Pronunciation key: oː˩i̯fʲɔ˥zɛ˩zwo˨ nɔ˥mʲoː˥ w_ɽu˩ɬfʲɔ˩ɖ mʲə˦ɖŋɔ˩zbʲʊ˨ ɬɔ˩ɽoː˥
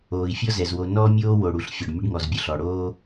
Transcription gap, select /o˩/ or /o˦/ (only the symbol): o˩